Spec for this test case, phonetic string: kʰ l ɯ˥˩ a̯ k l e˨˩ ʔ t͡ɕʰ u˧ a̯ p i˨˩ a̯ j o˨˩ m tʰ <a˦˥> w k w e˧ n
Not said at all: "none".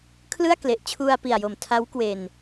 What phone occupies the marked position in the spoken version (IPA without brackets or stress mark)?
a˦˥